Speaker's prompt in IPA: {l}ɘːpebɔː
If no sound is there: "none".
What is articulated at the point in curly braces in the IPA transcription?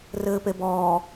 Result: r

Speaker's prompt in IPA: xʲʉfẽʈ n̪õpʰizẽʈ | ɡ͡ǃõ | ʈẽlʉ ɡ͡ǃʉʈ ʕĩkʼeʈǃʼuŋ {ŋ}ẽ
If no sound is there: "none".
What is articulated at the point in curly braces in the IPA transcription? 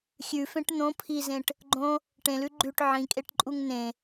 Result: n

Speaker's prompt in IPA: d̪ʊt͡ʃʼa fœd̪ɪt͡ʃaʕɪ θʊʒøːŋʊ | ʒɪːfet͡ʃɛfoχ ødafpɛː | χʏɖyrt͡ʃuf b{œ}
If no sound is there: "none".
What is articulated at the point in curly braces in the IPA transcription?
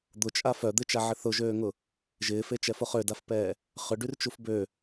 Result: ø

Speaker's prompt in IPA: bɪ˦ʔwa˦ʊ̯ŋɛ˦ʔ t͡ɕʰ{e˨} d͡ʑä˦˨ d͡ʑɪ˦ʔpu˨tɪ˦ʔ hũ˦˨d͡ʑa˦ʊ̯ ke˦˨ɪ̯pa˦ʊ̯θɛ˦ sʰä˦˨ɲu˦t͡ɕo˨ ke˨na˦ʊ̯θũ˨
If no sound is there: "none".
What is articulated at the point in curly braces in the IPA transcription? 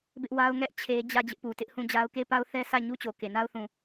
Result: e˦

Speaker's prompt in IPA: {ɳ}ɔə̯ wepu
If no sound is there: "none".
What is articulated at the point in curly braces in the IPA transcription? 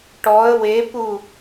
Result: ʈ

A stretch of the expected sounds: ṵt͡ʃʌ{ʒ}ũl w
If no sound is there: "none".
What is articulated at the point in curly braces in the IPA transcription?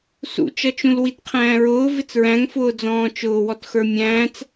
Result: t͡ʃ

